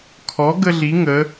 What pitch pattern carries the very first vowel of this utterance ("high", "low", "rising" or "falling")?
rising